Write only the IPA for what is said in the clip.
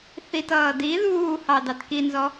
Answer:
θitʌː di ðuːhɑ dɑtkinzɔ

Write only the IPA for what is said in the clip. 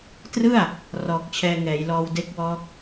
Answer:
trɯ˥˩a̯ | rɔː˨˩k̚t͡ɕʰɛː˧ŋɛː˩˦jlɔː˧w de˦˥k̚wɔː˦˥k̚

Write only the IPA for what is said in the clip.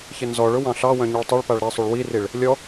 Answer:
çɪnzɔɭʊ wɑ̃ɬɑwœ̃ ɲuɭtˤɛɭpaɭ ɾɛsˤuɭ wiriɭ | lʲɔ

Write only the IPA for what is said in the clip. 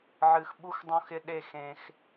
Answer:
ʕɨ˨x ɓu˧xdˤõ˧x ɪ˧ɗe˦˨x ẽ˧x

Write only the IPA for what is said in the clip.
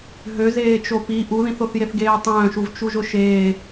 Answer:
ɦøzeːt͡ʃo pi ʔuðĩθoθjeθ ɡeːtˤœ̃ːʃuv t͡ʃuʒʊʃeː

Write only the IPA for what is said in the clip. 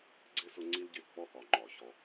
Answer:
ɡ͡ǀɪ˦ sʊ˦ŋ͡ǀi˦lɟɪ˦˨ k͡pɔ˦hɒ˨ ŋ͡ǃɒ˨çɔ˦

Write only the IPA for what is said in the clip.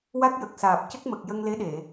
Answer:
wa˦˥k̚jə˨˩k̚saː˨˩p̚ cə˦˥k̚mə˨˩k̚ jə˧ŋle˧˥ɗe˨˩˨

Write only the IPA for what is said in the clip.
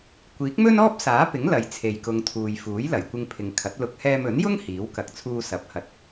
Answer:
kʷiː˨˥k̚mɵ˥nɔː˥p̚ saː˨˥pɪ˨˥ŋ lɐ˨j t͡sʰe˨jkʊ˨˧ŋt̪ʰuː˨j fuː˨˥jlɐ˨˩jkʷɪ˧ŋpʰɪ˨ŋ kʰɐ˨˥t̚lʊ˧k̚ hɛː˧mɵ˨˥njʊ˥ŋ hiː˨˥w kɐ˨k̚t͡sʰuː˧sɐ˨˥p̚ hɐ˧t̚

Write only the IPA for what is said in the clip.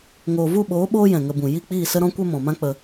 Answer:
ŋoː˨vu˦˨ɓoː˨˦ ɓoː˦jɛ̃˨ŋə˧bũ˨ ji˦˨k͡piː˦˨sə˦ ɾɔ̃˦kʷɛ˦ mɔ̃˨mã˦k͡pə˧

